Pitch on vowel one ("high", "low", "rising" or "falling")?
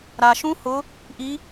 low